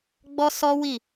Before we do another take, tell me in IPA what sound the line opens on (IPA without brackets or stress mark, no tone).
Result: ɡ͡b